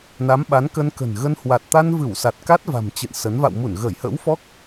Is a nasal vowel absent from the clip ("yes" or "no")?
yes